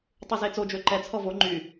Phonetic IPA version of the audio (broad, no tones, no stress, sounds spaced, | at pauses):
tˤ y z e t͡s o d͡ʒ ø ǃ ɛ t͡sʰ ɔ v o ŋ͡ǃ y